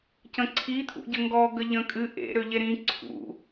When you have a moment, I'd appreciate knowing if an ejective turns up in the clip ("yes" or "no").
yes